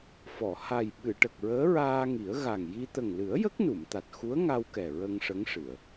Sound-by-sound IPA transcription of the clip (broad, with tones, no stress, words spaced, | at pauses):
fɔ˨˩˨ ha˨˩jɓɨ˨˩˨ʈə˨˩k̚ ɹəː˧˥ɹaː˧ŋi˨˩˦ə̯ ɣa˨˩ŋji˧ t̪ə˨˩ŋlɨ˨˩˦ə̯ jə˦˥k̚nu˨˩˨m t̪a˨˩t̚xu˧˥ə̯ ŋa˧wkɛ˨˩ ɹə˧ŋʂə˧˥ŋʂɨ˨˩˨ə̯